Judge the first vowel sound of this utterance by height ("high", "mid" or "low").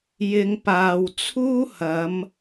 high